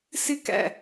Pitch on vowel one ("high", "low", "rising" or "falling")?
high